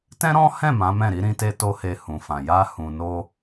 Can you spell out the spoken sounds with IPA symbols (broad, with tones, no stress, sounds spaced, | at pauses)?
t ɛ̃˦ ɾ ɔ̃˦ h ɛ̃˦˨ m ã˨˦ m ɛ̃˦˨ ɾ i˨˦ ɾ ĩ˧ t e˧ t o˦ h e˧ h ũ˨ f ã˨ j a˧ h ũ˨ n o˧